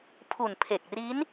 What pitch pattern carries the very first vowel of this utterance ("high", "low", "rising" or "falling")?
low